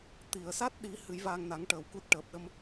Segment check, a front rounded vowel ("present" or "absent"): absent